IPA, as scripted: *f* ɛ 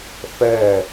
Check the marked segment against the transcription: correct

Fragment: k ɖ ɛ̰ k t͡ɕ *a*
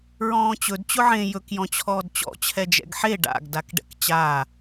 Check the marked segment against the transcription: incorrect: aː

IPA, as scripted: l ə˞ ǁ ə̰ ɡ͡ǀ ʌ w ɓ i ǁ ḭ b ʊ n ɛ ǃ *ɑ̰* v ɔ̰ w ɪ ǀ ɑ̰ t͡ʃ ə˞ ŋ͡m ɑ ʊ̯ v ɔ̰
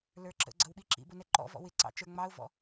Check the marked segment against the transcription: incorrect: ɔ̰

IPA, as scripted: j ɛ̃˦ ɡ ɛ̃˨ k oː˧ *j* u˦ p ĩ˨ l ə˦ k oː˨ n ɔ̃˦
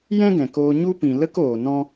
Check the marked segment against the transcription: incorrect: ɲ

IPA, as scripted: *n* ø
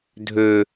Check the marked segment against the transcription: incorrect: dʱ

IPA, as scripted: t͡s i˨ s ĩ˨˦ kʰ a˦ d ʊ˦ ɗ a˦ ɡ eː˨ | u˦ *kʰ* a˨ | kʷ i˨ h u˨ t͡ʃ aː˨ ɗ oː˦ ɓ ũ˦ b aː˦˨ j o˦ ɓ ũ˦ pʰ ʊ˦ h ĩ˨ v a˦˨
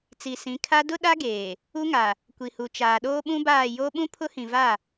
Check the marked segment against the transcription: incorrect: ŋ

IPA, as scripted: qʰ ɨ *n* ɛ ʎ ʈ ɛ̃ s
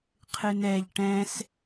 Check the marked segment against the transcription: correct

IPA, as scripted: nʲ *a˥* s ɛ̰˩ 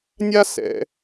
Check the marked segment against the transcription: correct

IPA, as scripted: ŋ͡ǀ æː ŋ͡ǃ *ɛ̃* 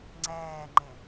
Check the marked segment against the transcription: correct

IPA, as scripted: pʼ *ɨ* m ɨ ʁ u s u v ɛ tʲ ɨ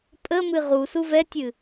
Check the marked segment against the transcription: incorrect: ə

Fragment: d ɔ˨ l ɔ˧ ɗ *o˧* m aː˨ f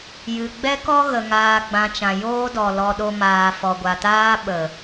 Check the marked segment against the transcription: correct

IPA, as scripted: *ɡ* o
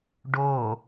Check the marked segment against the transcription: incorrect: ɖ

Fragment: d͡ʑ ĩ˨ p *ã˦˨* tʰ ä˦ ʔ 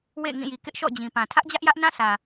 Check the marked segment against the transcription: incorrect: ã˨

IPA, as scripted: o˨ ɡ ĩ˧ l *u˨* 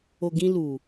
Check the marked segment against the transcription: correct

